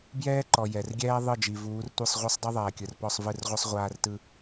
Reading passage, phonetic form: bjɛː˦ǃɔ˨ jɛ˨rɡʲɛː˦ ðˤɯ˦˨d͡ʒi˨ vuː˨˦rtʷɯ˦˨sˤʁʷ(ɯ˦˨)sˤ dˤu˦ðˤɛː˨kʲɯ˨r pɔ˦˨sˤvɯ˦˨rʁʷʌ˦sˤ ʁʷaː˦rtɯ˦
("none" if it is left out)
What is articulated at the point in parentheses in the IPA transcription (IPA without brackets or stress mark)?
ɯ˦